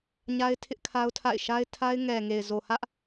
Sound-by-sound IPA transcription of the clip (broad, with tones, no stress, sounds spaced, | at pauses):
ɲ a˦ ɪ̯ tʰ ɪ˦ ʔ kʰ a˦ ʊ̯ tʰ a̰˦˨ ɪ̯ ʃ a˦ ɪ̯ tʰ a˦ ɪ̯ ŋ ɛ˨ ŋ e˨ ɪ̯ z o˨ h ä˦ ʔ